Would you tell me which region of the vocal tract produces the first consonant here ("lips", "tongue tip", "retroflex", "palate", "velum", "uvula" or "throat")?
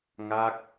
velum